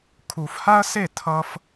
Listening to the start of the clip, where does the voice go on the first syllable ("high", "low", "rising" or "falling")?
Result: low